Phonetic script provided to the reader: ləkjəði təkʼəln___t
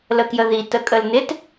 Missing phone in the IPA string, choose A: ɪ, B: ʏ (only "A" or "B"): A